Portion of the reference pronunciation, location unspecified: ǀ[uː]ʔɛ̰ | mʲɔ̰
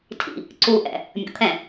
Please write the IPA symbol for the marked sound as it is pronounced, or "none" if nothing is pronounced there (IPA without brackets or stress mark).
uː